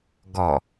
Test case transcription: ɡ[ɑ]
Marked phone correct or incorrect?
incorrect